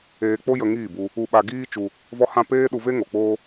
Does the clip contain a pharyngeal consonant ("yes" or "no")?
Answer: no